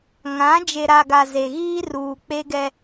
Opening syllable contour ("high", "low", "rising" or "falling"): rising